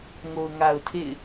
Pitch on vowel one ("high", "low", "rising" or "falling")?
low